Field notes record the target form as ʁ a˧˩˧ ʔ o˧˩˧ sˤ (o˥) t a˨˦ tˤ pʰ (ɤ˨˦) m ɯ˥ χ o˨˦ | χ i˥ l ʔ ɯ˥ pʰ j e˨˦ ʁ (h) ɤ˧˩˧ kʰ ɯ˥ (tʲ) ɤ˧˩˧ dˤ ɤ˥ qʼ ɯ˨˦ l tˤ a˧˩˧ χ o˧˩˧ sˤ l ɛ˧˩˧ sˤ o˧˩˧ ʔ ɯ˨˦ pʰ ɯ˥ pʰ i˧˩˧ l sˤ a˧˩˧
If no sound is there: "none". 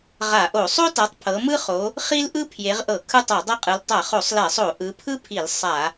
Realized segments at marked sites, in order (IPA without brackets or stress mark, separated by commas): o˥, ɤ˨˦, ʔ, tˤ